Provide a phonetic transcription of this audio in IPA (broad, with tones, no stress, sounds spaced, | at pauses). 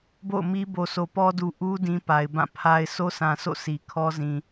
b o̰˦˨ ʊ̯ m i˦ b o˨ s o˨ p ɔ˦ d u˨ ʔ u˦ d ĩ˦ p a˨ ɪ̯ b ã˦˨ pʰ a˦ ɪ̯ s o˦ s ã˨ sʰ o̰˦˨ sʰ i˨ kʰ ɔ˦ z ĩ˨